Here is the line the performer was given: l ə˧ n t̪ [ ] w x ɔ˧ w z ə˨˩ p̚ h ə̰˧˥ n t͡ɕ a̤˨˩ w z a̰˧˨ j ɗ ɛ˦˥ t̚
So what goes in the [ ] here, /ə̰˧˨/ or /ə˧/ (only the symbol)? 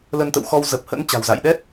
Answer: ə̰˧˨